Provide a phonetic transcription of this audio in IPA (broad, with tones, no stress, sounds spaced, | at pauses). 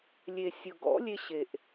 lʲ e˨ sʲ ʊ˨ ɡ ɔ̰˨˦ lʲ e˧ ɕ e˨ ʔ